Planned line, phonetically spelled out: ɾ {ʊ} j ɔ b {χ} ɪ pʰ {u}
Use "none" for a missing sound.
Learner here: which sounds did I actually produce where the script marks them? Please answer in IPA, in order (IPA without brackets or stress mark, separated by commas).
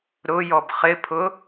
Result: ʊ, χ, ʊ